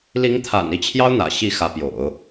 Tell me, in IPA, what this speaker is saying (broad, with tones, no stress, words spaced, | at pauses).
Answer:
li˧˥ŋt̪ʰa̰˨˩n i˥˩t͡ɕʰjɑ˥ʊ̯n̪ä̰˨˩ ɕi˥˩xä˧˥pjo̰˨˩˦ʊ̯